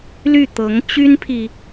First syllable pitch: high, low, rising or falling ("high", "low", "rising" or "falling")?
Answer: falling